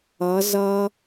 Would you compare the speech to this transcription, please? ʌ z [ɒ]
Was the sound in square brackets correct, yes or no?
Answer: no